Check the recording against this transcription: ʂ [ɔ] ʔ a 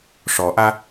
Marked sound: correct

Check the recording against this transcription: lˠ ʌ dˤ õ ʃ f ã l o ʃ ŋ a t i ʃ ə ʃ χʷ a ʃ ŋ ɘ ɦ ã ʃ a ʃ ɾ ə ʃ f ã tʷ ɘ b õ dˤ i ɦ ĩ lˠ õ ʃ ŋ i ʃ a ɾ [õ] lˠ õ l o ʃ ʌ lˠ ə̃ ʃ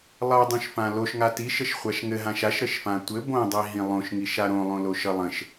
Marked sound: correct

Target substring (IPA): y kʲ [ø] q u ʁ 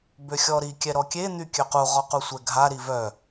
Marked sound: correct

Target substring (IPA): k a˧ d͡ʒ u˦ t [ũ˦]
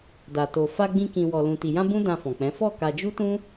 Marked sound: correct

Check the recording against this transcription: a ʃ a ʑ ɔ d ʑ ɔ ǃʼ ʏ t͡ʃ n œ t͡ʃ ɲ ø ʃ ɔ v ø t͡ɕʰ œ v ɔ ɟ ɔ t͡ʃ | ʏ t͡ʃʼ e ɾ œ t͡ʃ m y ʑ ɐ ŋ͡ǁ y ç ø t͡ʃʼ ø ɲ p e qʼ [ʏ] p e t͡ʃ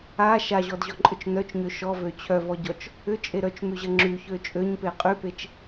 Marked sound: incorrect: y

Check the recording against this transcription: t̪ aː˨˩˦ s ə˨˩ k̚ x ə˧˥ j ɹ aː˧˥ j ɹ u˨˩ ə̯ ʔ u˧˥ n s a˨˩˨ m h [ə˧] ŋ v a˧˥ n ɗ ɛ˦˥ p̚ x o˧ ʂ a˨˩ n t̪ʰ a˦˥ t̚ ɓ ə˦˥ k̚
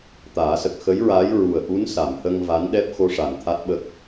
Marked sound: correct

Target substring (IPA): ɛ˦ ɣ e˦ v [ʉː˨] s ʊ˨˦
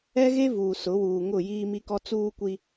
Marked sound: incorrect: uː˨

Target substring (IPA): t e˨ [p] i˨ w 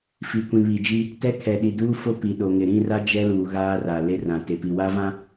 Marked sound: correct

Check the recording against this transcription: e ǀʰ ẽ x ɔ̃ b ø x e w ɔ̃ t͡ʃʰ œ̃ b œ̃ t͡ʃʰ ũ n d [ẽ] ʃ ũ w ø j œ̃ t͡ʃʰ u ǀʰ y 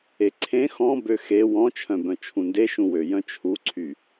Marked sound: incorrect: e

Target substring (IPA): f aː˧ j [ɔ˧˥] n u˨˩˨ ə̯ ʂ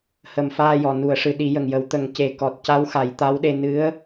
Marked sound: incorrect: ɔ˨˩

